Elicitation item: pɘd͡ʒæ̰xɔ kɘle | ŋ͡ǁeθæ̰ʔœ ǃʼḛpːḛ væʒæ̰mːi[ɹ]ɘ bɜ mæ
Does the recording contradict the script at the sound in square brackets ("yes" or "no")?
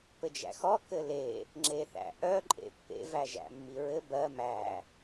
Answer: no